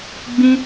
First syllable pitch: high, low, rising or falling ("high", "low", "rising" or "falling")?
high